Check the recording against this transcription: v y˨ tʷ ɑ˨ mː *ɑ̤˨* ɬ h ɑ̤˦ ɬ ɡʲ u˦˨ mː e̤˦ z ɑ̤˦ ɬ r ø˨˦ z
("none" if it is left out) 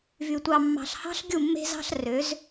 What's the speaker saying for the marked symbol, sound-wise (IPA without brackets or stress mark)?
ɑ̤˨